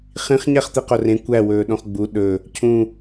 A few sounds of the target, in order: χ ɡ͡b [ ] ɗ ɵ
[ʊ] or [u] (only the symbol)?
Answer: u